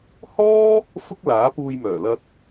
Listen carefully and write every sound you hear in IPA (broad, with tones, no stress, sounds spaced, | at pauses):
h ɔː˥ | f ʊ˥ k̚ l aː˨˥ p uː˧ j m œː˨˩ l ɐ˧ t̚